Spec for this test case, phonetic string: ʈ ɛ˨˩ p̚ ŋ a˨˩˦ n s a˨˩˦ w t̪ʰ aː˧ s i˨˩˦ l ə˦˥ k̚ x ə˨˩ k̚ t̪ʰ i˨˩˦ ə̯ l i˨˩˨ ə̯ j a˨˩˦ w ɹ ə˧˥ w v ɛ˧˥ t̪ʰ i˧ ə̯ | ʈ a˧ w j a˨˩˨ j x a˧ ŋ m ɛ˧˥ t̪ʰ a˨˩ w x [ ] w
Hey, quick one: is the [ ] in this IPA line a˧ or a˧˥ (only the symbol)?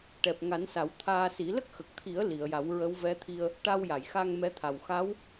a˧˥